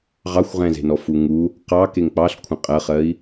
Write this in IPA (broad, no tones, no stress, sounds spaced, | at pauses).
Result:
ʁ ɑ xʷ ʁ ɛ̃ z e̤ n ɔ f u ŋ u | q ɑ k e ŋ k͡p ɑ ɬ kʷʰ ɐ̃ qʼ ɜ χ ɜ i̯